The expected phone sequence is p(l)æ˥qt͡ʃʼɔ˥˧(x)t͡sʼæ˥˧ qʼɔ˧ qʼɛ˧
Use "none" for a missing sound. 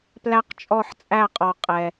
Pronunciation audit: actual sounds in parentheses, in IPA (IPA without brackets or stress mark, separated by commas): l, ħ